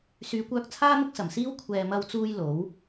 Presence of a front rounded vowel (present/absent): present